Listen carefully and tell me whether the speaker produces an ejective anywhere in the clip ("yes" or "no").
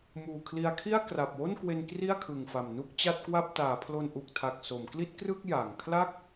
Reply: no